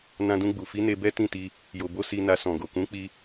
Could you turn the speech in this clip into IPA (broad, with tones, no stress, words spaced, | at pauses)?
nã˧dũ˧ɡ͡bu˨ fi˨˦ne˧ bɛ˦tĩ˦˨ti˧ | jo˨bo˧ si˧na˧ sɔ̃˨ɡo˨ kũ˨˦k͡pi˧